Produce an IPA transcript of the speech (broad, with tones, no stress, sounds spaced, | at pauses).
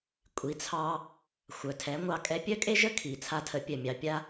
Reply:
kʷʼ i˩˥ t͡sʰ ɑ˧ | xʷ œ˩ tʰ ɛ˩˥ ŋʷ ɑ˧ kʼ ɛ˧ pʲ œ˥ kʼ e˥ ʒ ə˥ kʰ i˩ t͡sʰ a˧ tʰ ə˩˥ pʲ œ˩ mʲ ɑ˩ pʲ a˧